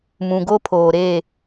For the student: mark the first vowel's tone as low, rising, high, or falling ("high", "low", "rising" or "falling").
low